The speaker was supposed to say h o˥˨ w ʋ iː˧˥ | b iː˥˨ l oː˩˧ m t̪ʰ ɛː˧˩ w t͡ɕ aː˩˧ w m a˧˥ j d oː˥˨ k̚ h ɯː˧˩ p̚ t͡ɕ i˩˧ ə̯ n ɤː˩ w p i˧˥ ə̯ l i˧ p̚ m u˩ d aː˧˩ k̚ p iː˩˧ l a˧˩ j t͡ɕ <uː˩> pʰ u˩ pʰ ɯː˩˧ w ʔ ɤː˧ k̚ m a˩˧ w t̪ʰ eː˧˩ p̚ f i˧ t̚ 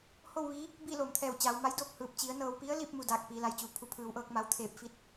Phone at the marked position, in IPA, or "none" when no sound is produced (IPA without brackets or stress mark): uː˩